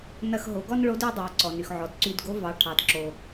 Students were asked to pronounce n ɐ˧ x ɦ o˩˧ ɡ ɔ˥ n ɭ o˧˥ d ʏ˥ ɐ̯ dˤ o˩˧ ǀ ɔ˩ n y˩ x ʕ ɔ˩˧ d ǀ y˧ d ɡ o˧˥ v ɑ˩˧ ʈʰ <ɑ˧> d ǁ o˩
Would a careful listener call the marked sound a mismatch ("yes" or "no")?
yes